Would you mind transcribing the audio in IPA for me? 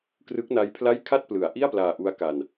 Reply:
krɯ˦˥k̚na˦˥jpʰla˥˩j kʰa˥˩t̚plɯ˩˦a̯ ʔi˥˩a̯plaː˧ʔu˦˥a̯ ka˧n

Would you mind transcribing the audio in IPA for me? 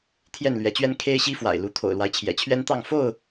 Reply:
t̪ʰjɛ˥˨nlɥɛ˨˦t͡ɕɥɛ˦n kʰe˦ɪ̯ɕi˦fwa̰˨˩ɪ̯ lu˨˦t̪ʰo̰˨˩ʊ̯lwa˦ɪ̯ t͡ɕʰjɛ̰˨˩t͡ɕʰɥɛ˦nt̪ɑ˥˨ŋ fo˥˨ʊ̯

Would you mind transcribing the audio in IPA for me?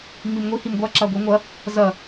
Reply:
ŋ͡mimŋʷi himɡʷa ǁaɡʷiŋʷɐ | zɐ

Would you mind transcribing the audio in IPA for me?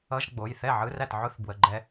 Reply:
ʌ˧˥˧ʒ ɡ͡bo˩˧˩jθɛ˥˩ ʕɯ˧˥˧ræ˥˩t ʕʊ˧˥˧θbwə˩˧˩ ɡ͡ǃɛ˧

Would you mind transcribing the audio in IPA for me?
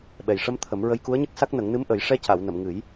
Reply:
ɓɛ˨˩jʂə˧m t̪ʰə˨˩˦m ɹə˧jku˧˥ə̯ɲə˦˥k̚sa˦˥k̚ nə˨˩˦ŋnɨ˧˥mʔə˨˩˦j ʂɛ˧˥ca˨˩˨wnə˨˩˨m ŋɨ˨˩˦j

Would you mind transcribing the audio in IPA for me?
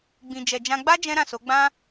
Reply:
ɡ͡bĩ˨d͡ʒɛ˨d͡ʒã˧ ɡ͡ba˦ d͡ʒɛ̃˦ɾã˦˨so˨˦ ɡ͡bã˦

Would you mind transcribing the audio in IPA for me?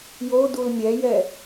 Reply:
jo dulmʲɛjɛ

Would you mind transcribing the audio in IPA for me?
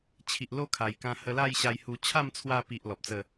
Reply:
t͡ɕʰi˨ʔlo˦kʰa˨˩jkã˧ hə˧la˥˧jɕa˧j hu˧ t͡ɕʰa˥˧mt͡sʰwa˧pi˨ʔ lɔ˨p̚t͡sə˥˧

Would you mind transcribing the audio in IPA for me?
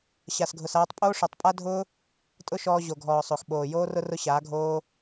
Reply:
ɕa˨sɡʱʊ˨saː˧tˤ pʼoː˦ʂɔ˨tˤ pʼa˦dʱʊː˦ | tʼʊ˦ʃɔː˧ ʑo˨ɡʱɔː˨sˤo˨x ɓoː˨ joː˦rʊ˦ rʊ˦ɕaː˨˦ɡʱoː˦

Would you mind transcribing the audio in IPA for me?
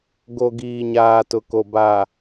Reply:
ɡo˨ɡiː˨ɲaː˨ tʊ˨ko˨ ba˨

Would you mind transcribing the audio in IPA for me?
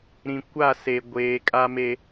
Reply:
ɾĩ˨ kʷa˦˨ se˨ ɡʷeː˨ kʼa˦me˦

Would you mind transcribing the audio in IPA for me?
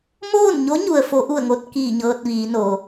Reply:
moː˥˨nɲo˧˥ɲu˩ə̯fo˩˧ ʔu˧˩ə̯ŋo˧t̚kiː˧˩ ɲɤː˧t̚ʋiː˩˧noː˩

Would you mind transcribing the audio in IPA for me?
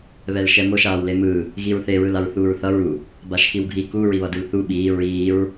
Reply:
βɛlʃɛmoʃ aːwlemɯː | ɣiɹθe ɹɯlaɹθuːɹθʌɹ u | baʃxiwɡʱi ku ɹiβʌdɯlθu ɓiː ɹiːɹ

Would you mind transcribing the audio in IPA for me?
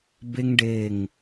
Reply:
be˥ŋɖe˦˨ŋ

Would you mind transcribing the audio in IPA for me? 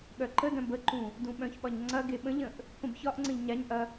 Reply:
ɠœǃədœ̃ bəǃũ | dũɓœ̃çɓɒɲ ŋ͡ǀɐ ɡeɓə̃ʎə̃ʔ | pə̃bçɒʔŋ͡ǀə̃ʎ ɲaɲʔɐ

